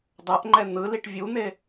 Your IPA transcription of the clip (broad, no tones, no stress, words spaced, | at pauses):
dˤʌʔŋ͡ǃɛ n̪ɯliʈ vʲun̪e